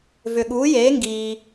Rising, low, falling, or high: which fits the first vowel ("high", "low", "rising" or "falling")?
low